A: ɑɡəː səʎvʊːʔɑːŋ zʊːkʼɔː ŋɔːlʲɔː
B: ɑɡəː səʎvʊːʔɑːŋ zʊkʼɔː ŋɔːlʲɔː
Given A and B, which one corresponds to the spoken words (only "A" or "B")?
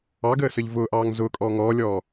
A